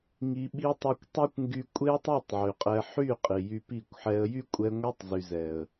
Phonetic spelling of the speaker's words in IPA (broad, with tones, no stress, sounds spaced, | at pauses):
ŋ i˧ ɓ i˦ tˤ e˧ kʷ tˤ ɛ˦ kʷ ŋ ɡ y˧ kʷʼ e˦ ə̯ tˤ i˦˨ tˤ ʕ y˨ qʼ ɛ˧ ħ y˦˨ qʼ i˨ j y˧ p i˦˨ kʷ ħ ɛ˧ ə̯ j y˦ kʷʼ ɛ˧ ŋʷ ɛ˦ tˤ z y˨ z ɛ˨ ə̯